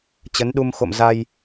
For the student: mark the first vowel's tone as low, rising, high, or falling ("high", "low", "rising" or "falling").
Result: rising